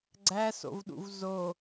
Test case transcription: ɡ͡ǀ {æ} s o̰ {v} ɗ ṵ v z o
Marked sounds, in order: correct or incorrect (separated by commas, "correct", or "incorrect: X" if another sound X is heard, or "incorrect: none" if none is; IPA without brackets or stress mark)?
correct, correct